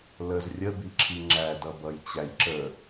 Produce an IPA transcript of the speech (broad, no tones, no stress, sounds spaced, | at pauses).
l ə z rʲ ə b i ǁʰ i ŋ͡ǁ æ d ʌ b ʌ j t͡ɕ æ j ǁ ə